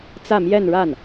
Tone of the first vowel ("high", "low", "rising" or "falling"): falling